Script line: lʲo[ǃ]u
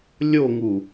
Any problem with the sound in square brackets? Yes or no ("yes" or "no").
yes